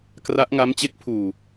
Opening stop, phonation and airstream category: plain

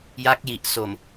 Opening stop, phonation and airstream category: plain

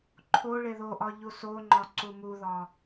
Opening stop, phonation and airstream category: click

